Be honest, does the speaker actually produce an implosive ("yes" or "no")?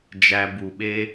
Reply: yes